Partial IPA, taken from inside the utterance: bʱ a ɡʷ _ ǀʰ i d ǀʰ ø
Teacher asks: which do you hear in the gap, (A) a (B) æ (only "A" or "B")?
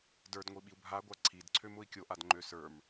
A